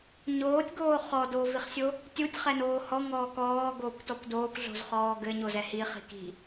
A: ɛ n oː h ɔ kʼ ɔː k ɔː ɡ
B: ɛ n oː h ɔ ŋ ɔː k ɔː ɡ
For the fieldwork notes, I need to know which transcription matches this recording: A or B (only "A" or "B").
B